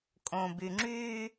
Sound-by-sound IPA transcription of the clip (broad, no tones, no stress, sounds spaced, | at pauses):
kʼ õ b y ŋ͡ǁ y